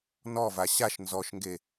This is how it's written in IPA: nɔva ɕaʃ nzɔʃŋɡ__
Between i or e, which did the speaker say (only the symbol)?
e